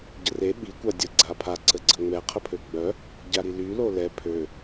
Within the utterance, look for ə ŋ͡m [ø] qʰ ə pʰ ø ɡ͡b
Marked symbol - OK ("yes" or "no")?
no